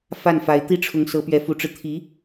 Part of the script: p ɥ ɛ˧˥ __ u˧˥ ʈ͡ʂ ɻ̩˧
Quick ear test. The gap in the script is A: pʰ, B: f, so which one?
B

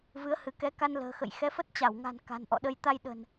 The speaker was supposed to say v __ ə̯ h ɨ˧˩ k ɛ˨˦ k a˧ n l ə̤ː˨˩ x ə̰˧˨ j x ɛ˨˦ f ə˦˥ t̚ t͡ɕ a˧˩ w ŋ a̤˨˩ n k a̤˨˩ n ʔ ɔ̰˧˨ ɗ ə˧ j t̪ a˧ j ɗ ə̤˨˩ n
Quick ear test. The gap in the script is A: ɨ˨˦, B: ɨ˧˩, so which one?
A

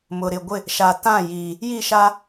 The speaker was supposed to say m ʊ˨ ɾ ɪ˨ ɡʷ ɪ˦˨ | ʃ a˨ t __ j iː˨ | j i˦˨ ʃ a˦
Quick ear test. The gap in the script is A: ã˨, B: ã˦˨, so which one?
B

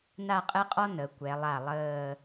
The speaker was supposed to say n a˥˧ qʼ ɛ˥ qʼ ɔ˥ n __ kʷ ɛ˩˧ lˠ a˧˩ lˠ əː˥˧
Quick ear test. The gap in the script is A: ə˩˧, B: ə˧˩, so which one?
A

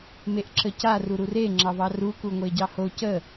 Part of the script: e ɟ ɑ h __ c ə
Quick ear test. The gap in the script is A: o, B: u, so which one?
A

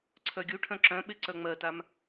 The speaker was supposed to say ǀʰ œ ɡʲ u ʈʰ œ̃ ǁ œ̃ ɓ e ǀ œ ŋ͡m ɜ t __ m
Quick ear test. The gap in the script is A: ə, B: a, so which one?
B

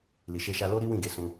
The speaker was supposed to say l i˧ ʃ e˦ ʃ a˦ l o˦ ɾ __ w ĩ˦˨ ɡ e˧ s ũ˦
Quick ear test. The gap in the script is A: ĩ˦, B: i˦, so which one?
B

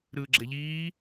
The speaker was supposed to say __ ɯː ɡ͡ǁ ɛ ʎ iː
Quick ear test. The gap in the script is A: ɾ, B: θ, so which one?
A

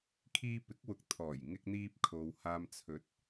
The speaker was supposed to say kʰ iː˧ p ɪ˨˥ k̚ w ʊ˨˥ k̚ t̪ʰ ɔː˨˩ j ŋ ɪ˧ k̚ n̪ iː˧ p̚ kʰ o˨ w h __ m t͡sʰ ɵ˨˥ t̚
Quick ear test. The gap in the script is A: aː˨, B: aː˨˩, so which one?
A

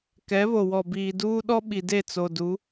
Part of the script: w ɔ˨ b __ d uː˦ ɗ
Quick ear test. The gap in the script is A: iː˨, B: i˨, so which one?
A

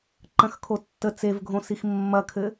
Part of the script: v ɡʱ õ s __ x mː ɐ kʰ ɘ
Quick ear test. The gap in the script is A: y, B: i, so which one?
B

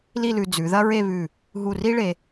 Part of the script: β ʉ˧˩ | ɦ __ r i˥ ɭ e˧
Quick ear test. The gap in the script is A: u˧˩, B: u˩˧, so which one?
A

